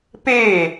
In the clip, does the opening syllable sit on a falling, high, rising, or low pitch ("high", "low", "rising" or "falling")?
falling